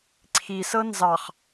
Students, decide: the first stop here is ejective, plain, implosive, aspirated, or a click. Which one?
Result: click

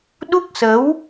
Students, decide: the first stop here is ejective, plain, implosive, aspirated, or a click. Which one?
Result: implosive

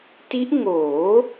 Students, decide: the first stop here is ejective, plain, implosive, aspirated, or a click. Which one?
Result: plain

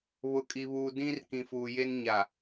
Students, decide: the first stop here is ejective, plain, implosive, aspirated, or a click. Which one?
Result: ejective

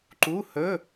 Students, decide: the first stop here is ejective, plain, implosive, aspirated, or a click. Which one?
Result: click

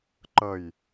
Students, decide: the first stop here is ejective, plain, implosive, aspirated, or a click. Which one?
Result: click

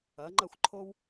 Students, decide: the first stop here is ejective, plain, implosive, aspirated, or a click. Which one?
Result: click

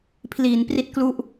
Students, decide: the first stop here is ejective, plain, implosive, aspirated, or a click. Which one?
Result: aspirated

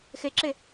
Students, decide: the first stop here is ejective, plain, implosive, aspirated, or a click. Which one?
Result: click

